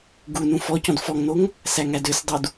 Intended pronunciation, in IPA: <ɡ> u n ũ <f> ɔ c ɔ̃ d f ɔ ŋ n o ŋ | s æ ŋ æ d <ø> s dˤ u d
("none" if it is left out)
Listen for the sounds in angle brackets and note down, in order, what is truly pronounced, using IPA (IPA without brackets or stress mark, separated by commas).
ɡ, f, ø